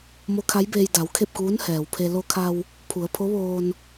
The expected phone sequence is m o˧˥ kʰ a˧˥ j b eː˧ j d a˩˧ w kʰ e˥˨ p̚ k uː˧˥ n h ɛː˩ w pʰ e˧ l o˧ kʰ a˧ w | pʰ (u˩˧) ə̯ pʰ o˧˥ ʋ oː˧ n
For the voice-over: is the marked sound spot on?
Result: yes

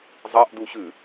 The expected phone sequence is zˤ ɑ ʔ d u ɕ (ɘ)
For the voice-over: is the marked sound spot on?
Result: no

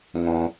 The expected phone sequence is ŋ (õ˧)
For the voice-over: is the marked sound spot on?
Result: yes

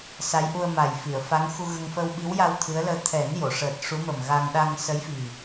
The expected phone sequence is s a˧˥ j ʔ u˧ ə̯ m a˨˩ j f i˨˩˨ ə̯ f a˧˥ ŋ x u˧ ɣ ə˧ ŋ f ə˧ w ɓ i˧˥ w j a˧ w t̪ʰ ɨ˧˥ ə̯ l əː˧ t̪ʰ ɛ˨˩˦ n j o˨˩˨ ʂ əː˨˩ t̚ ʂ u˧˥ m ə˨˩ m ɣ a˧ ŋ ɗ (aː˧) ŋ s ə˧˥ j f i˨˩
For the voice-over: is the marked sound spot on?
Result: no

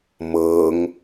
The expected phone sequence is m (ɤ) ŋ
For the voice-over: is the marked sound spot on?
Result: yes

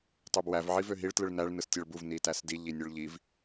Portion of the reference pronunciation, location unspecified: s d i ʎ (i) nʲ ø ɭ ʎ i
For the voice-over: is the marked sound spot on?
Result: yes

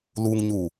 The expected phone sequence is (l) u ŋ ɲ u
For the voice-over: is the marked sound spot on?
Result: yes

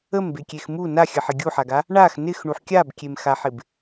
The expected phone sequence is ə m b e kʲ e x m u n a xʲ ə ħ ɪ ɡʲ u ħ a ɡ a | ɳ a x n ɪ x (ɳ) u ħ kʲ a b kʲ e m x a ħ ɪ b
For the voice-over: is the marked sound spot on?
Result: yes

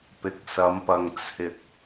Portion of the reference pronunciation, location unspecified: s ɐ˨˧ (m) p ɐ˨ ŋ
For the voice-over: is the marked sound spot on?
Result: yes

